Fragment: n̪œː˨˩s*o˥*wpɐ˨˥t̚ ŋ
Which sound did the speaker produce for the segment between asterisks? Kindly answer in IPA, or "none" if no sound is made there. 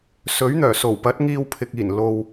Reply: o˨˩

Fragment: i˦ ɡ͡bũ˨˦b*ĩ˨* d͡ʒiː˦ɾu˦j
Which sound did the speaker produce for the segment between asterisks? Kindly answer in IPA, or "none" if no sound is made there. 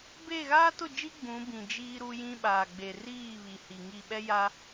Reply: ĩ˨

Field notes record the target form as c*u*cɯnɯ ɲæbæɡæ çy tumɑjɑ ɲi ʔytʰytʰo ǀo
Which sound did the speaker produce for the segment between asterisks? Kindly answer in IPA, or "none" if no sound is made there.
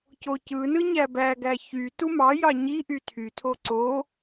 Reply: o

